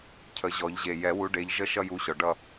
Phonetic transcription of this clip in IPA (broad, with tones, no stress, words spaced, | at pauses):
cʰə˨˩˦ʑɔ˨˩˦ʎʑe˨˩ jɛ˨˩˦wu˨˦ ɖe˨˦ʎ ʒə˥˧ʃʌ˥˧ju˨˦ɕɔ˨˩ ɖʌ˥˧